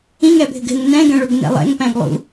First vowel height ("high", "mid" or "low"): high